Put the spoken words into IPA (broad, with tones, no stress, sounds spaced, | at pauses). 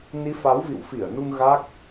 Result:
n i˨˦ f a˨˦ w v ḭ˧˨ w f i˧˩ ə̯ n u˧ ŋ ɣ a˦˥ k̚